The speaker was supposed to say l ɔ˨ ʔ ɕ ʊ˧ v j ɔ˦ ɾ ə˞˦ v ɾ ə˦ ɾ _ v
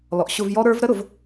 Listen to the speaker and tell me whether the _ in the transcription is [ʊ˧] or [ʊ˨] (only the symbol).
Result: ʊ˨